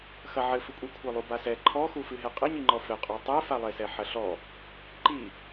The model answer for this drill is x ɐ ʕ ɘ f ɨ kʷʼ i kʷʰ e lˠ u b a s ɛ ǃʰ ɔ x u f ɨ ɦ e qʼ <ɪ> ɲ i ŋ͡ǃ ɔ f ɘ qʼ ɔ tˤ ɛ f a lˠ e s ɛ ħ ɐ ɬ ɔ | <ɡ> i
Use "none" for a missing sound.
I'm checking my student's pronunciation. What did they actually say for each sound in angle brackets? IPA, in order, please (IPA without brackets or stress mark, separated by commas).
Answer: ɨ, ǃ